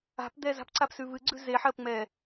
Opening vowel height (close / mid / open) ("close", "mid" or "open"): open